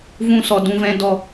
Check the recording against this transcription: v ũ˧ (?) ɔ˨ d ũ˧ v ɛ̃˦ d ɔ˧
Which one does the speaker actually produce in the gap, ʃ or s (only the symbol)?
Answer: s